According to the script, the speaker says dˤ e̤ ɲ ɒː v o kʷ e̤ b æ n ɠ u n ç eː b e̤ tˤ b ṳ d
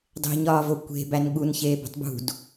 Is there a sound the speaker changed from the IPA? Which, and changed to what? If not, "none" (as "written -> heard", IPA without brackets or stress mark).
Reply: none